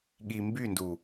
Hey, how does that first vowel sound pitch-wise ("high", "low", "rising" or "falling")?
low